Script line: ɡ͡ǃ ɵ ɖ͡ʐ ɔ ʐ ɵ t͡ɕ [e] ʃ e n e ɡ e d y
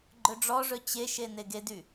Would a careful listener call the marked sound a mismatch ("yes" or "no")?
no